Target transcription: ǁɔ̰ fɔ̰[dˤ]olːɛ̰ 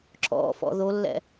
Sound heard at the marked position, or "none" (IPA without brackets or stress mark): ð